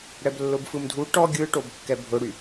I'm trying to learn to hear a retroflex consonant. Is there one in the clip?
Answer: yes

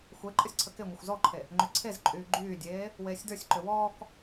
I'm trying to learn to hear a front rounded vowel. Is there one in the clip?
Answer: yes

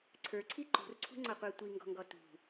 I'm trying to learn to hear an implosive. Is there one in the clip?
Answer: no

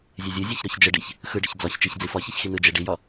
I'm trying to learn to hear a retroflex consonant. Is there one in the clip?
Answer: yes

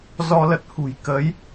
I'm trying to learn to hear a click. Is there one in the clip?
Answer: no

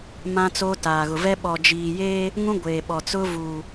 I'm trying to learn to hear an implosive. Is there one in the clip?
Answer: yes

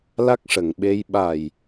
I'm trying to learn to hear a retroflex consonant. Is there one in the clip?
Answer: yes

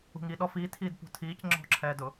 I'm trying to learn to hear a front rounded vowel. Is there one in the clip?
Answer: no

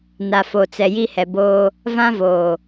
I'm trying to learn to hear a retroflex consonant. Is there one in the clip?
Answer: no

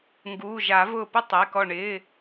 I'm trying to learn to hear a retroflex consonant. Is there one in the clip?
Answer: yes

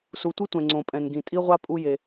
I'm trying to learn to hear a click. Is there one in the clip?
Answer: yes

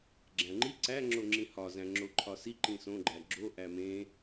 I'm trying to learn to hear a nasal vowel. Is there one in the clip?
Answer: yes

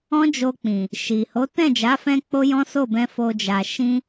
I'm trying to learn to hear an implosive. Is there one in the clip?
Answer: no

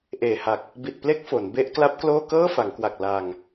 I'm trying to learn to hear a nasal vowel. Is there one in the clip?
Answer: no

